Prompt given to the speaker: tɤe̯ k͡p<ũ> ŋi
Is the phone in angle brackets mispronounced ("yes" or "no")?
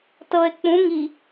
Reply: no